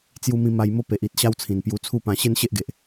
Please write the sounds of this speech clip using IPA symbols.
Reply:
t͡s j u˧ m ĩ˧ m a˧ j m o˥˧ p e˨ ʔ i˨ t̚ ɕ a˦ w t͡sʰ ĩ˨˩ n p j u˧ t͡sʰ u˥˧ p ã˧ ɕ e˦ n ɕ e˦ ʔ ɡ e˨ ʔ

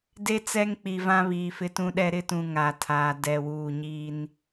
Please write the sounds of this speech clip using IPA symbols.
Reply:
d e˦ t͡s ɛ˦ ŋ k͡p i˨ v ã˦ β iː˨ f ɪ˦ t ũ˦ ɗ ɛ˦ ɾ ɪ˦ t ũ˨ ŋ a˨ tʰ aː˨ d ɛ˨ w uː˨ ɲ iː˦ n

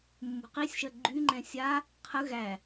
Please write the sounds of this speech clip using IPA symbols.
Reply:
mː ṳ q i sʲ ʃ ɜ ɡ͡ǃ y ŋ͡ǃ ɛ̃ sʲ a | qʰ ə ɣ æ

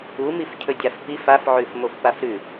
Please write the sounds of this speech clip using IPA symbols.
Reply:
u m i f cʰ ɵ dʲ a f p i f a f ʕ ʉ f m o f p a f ɾ ʉ

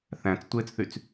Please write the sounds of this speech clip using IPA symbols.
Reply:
θ æ̃ t͡s tʷ eː t͡s θ y t͡s

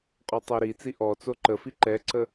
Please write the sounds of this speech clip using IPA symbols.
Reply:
qʼ ɔ tˤ ɤ ɾ i t͡s i ʔ ɔ t͡s o ǃ ə f i ǃ ɛ ǀ ə

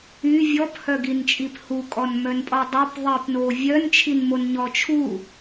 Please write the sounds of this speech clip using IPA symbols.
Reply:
y vʲ ɔ p h œ ɡ i n t͡ʃʼ i p h u kʼ ɔ n m œ n pʼ ɔ dˤ o p ðˤ i p n o vʲ œ n t͡ʃʰ i n m o n ɲ ɔ t͡ʃʰ u

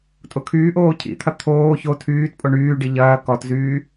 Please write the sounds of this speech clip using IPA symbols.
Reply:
tʼ ʊ kʰ yː ʔ oː cʰ ḭ t̪ʰ ɐ t̪ʰ oː ç o tʰ yː t pʼ o ɳ yː ɖ i ʎ ɐː k ɔ t z yː

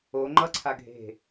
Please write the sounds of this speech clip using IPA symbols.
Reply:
o ŋ͡ǃ ʌ ǀʰ a ɡʱ e̤

